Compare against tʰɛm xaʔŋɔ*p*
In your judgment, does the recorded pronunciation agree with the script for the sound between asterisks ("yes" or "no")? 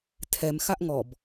no